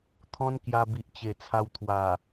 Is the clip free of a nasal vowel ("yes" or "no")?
no